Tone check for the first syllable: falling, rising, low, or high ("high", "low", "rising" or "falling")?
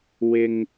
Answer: low